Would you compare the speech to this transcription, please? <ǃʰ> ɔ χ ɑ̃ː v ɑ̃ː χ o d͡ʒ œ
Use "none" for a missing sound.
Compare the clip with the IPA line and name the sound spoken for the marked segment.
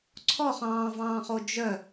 ǀʰ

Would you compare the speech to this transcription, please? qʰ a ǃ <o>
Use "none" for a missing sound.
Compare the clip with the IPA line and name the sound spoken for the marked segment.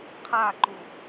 u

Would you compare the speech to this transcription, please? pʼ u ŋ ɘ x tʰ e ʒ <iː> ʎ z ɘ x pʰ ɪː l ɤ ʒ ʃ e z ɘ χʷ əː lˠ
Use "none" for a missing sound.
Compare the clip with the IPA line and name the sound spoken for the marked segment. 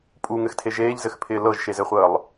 eː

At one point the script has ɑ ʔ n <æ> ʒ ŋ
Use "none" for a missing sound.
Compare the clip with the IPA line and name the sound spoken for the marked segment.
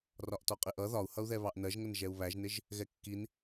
ɜ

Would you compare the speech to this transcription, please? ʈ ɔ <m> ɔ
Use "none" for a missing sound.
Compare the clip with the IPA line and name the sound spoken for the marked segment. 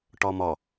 m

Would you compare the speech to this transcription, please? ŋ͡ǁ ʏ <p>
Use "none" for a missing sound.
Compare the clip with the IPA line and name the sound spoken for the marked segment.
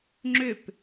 p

